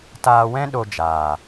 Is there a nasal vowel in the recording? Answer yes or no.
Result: yes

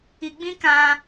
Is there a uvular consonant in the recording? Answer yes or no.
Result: no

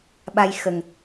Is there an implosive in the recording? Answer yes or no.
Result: yes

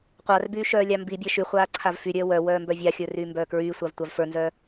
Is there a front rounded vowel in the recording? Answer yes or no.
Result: yes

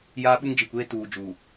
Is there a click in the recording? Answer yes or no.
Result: no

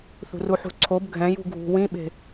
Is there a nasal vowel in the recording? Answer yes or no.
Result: yes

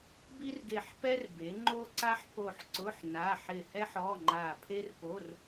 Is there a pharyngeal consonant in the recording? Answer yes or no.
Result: yes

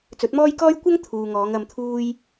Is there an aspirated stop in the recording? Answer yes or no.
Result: yes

